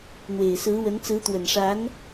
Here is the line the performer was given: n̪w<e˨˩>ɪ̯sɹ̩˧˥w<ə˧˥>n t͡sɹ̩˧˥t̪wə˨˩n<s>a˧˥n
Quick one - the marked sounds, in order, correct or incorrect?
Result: correct, correct, incorrect: ʂ

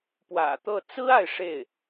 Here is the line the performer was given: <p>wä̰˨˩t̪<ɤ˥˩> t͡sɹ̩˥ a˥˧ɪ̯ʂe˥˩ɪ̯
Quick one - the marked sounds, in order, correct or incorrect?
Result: correct, correct

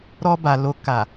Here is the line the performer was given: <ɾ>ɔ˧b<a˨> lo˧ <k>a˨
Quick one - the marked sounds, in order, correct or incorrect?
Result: correct, correct, correct

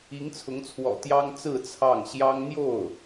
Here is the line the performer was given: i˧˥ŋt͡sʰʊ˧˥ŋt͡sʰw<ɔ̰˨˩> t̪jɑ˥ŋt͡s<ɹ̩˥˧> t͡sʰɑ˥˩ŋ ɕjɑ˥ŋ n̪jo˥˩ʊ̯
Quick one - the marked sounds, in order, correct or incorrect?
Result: correct, correct

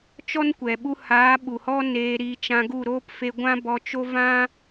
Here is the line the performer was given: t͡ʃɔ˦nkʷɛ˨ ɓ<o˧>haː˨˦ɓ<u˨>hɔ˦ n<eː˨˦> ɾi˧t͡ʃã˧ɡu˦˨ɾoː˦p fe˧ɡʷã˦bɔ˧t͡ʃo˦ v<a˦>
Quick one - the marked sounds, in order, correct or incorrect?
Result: incorrect: u˧, correct, incorrect: eː˧, incorrect: ã˦

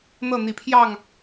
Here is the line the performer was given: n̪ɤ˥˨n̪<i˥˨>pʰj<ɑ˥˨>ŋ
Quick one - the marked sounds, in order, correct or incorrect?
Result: incorrect: i˨˦, correct

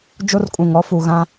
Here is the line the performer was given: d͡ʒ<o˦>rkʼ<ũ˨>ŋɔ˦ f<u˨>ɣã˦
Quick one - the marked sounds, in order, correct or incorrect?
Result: correct, correct, correct

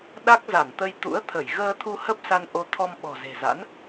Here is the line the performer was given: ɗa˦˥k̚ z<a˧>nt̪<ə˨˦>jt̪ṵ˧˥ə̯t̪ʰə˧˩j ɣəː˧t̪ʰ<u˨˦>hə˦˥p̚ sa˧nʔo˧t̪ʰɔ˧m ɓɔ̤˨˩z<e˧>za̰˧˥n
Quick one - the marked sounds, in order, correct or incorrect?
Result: incorrect: a˧˩, incorrect: ə˧, incorrect: u˧, incorrect: e̤˨˩

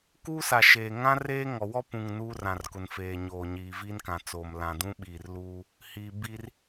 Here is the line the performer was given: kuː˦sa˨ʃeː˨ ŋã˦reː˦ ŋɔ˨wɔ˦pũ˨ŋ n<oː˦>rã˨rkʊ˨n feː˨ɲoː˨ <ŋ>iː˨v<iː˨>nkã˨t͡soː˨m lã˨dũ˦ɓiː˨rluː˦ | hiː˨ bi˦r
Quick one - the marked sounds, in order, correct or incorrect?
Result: incorrect: uː˦, incorrect: ɲ, incorrect: iː˦

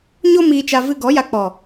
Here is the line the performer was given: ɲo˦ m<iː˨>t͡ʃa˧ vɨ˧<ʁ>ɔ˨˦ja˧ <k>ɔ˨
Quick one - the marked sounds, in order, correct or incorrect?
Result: incorrect: iː˧, incorrect: ɡ, incorrect: k͡p

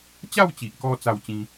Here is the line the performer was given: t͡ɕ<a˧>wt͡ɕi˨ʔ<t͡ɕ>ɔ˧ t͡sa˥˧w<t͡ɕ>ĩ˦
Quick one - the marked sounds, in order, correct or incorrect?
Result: incorrect: a˥˧, incorrect: k, correct

